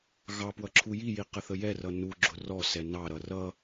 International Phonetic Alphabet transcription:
ɣɑ pwʌǁʰujiji qəθəjɛrʌ nuɡ͡ǁʊ rɔsɛ nɑɾʌ rʌ

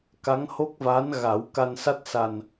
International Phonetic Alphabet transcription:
ka˧˥ŋho˦˥k̚vaː˧˥n ɣa˨˩˦wka˧nsa˦˥t̚ sa˨˩n

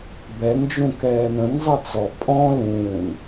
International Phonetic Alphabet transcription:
bɛnd͡ʒũ kɛːnə̃nzˤə t͡sɔ pʼɔ̃ lũːn

